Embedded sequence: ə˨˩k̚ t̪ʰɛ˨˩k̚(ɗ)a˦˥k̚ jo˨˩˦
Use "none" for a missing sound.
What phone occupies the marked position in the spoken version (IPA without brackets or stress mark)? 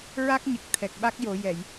ɓ